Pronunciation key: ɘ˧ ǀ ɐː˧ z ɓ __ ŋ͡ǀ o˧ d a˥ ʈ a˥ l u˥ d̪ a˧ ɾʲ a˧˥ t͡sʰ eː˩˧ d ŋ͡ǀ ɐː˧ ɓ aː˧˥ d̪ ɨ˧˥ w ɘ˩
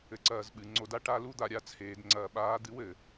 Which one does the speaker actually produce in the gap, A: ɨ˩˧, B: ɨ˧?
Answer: A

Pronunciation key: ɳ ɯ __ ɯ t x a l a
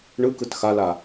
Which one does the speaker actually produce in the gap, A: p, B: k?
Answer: B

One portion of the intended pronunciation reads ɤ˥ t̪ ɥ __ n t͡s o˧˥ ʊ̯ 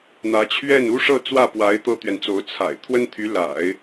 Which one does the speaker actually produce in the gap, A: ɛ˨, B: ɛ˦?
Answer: A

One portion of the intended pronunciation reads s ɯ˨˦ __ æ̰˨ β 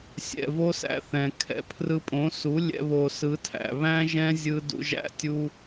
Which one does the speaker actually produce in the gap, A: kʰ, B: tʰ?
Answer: B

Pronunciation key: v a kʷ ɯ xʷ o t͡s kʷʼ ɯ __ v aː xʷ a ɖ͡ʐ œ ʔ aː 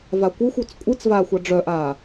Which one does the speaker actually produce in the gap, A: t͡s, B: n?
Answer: A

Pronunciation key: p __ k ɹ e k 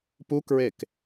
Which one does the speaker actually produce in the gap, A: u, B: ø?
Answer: A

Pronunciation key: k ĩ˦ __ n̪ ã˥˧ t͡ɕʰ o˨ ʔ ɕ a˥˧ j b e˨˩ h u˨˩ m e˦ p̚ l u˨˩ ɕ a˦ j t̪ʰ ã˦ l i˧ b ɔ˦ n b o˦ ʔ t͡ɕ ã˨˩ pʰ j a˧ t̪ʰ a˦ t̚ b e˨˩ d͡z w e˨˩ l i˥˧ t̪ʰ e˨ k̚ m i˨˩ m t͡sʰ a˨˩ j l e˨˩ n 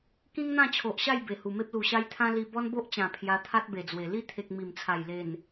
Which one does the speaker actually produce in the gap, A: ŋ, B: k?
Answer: A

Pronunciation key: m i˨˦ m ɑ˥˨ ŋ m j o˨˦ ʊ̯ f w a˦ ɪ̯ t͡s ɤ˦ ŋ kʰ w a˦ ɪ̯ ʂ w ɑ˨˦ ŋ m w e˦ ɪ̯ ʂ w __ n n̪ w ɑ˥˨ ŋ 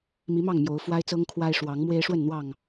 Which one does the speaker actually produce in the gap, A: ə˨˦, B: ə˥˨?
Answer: B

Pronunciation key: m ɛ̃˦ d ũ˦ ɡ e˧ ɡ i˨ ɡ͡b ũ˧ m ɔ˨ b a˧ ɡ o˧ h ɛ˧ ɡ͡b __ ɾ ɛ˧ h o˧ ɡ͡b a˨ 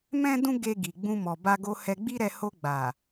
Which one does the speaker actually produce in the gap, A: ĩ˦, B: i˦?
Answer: B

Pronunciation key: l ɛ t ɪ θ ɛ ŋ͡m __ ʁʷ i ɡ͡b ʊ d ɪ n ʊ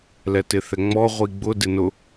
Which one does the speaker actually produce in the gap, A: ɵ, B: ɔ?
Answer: B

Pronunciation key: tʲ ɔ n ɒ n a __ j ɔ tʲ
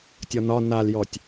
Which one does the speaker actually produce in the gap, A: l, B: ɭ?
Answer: A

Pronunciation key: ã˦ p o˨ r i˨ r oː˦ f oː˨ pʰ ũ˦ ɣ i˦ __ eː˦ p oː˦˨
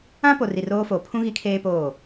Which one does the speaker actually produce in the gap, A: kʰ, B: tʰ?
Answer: A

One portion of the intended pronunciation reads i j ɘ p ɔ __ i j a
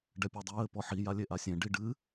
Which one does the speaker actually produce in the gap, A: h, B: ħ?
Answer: B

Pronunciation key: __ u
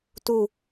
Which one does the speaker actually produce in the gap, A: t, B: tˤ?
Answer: A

